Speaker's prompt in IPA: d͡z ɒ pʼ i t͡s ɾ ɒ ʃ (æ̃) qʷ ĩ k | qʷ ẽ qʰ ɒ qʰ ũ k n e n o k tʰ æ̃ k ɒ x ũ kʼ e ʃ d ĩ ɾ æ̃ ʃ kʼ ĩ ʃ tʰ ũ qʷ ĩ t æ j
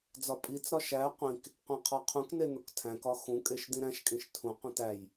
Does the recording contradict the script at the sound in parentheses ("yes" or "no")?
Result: yes